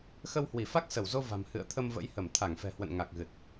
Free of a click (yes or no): yes